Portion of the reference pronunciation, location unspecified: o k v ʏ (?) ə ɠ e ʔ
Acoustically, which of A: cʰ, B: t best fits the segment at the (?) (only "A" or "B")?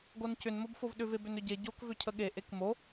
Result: A